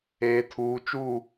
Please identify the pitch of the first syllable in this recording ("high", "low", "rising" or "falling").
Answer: low